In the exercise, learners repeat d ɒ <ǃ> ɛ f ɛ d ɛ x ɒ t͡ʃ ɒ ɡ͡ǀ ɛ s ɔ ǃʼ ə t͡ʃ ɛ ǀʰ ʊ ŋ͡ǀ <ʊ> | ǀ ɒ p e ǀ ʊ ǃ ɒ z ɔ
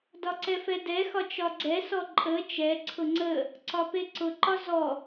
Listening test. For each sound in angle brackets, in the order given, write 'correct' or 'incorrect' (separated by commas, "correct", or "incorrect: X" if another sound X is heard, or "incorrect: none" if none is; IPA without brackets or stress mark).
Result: incorrect: ǀ, incorrect: ə